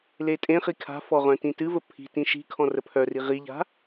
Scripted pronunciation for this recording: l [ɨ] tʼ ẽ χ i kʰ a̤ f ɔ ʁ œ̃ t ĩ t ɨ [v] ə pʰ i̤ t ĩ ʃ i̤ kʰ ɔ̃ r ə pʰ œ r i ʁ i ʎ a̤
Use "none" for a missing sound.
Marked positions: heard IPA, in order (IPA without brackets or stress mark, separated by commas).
e, v